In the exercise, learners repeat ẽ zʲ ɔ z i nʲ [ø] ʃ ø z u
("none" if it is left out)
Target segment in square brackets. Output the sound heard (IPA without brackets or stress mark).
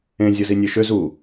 ø